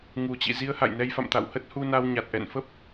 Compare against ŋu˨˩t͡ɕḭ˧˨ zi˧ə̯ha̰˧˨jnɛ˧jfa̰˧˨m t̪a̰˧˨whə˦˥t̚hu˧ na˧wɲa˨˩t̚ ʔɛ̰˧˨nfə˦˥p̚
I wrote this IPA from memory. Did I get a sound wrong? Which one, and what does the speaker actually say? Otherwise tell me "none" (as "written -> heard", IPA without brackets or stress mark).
none